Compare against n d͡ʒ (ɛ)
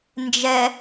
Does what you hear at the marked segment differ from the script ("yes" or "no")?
no